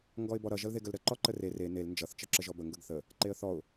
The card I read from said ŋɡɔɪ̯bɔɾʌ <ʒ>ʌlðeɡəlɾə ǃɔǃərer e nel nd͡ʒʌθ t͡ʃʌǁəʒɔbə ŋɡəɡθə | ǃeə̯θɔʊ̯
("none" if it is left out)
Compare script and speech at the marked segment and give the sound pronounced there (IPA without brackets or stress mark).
ʒ